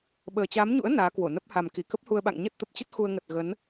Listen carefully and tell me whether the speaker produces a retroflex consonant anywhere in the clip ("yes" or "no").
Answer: no